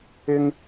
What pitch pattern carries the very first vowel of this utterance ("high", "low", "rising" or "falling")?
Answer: high